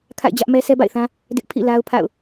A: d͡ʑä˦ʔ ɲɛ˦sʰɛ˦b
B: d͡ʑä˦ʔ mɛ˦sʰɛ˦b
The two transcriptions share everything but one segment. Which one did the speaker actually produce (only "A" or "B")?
B